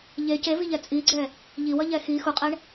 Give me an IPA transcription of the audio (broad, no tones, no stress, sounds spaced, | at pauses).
ʎ e c e v i ʎ ɛ t͡sʼ i ɡ͡ǀ ɛ | ʎ i w ʌ ʎ ɛ x i x u qʼ ɛ ɳ